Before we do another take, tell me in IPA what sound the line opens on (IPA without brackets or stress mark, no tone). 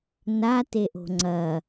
n